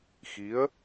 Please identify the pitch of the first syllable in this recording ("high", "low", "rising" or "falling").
rising